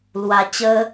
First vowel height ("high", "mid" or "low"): low